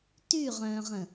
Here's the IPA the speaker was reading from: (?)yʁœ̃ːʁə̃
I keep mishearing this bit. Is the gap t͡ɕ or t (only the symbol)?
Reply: t